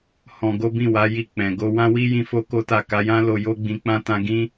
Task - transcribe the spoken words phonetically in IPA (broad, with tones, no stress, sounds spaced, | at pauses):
h ɔ̃˧ ɡ o˦ b ĩ˦˨ w a˨˦ j i˦˨ k͡p ɛ̃˨ ɡ o˧ w ã˦ w i˦ j ĩ˦ f o˦ k o˦ t a˦˨ k a˧ j ã˦ l o˧ j o˦ ɡ͡b ĩ˧ k͡p ã˦ t ã˧ ɡ ĩ˦